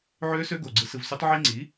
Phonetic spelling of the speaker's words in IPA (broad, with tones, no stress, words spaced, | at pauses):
ʕø˦˥sø˦˥ɡo˨˩ ɡ͡ǀɯ˧sɯ˧vsy˦˥tˤ ʕi˦˥ŋ͡ǀi˩˥